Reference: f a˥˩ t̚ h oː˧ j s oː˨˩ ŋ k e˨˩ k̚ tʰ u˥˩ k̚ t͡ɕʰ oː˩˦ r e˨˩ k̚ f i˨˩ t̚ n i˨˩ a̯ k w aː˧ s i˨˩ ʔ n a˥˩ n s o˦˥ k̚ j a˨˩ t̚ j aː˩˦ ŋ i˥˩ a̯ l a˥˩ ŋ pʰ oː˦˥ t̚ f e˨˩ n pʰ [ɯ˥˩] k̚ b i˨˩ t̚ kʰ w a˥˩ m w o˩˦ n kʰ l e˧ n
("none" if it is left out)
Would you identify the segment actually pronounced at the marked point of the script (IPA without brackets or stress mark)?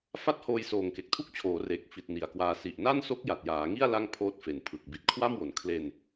ɯ˨˩